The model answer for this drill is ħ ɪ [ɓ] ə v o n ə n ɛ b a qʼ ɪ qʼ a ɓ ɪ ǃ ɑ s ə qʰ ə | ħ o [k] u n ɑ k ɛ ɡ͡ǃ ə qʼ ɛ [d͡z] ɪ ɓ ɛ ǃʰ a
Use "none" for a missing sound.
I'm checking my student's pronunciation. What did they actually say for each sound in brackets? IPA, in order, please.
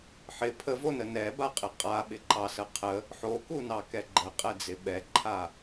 pʰ, k, d͡z

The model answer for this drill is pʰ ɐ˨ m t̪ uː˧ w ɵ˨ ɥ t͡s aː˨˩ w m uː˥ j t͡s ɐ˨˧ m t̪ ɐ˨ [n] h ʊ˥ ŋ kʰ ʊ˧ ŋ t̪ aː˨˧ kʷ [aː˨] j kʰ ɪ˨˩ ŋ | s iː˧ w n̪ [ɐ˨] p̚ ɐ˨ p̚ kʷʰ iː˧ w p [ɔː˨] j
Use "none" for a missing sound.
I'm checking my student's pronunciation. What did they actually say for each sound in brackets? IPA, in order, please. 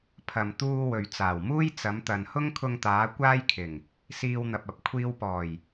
n, aː˥, ɐ˨, ɔː˨˩

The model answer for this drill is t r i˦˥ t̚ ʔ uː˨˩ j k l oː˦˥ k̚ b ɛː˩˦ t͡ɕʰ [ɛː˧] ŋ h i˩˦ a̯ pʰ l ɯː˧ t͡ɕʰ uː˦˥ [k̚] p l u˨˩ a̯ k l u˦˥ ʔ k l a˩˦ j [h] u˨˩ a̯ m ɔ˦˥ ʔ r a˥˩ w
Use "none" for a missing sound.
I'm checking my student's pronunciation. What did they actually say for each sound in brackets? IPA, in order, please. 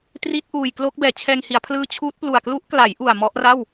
ɛː˧, t̚, ʔ

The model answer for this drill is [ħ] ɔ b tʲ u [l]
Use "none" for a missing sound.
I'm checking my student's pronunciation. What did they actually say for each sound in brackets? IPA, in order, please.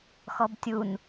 x, n

